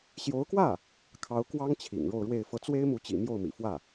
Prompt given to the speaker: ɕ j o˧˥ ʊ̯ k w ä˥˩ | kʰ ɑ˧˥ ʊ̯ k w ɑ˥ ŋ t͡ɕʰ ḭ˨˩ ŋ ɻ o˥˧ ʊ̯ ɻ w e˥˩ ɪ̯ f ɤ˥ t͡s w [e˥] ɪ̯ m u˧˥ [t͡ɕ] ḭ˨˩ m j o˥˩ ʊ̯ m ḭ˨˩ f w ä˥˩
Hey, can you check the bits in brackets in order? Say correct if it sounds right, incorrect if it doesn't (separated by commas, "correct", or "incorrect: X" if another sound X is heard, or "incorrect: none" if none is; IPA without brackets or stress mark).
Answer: correct, correct